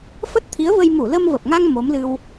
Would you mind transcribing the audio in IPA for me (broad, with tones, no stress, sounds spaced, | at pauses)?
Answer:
f ə˦˥ t̚ t̪ʰ i˨˦ ə̯ v ə˧ j m u˧˩ l ə˧ m v ə˨˩ p̚ ŋ a˧ ŋ m o˨˦ m l ɨ˧ w